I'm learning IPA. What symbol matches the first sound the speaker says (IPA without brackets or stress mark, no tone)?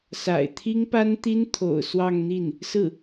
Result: s